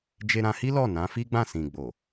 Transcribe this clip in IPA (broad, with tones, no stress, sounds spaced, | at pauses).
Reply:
d͡ʒ e˧ ɾ ã˧ h i˦ l ɔ˦˨ n ã˨˦ f i˦ ɡ͡b ã˦˨ s ĩ˨ ɡ͡b o˨